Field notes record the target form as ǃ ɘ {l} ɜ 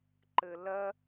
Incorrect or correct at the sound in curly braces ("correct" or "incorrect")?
correct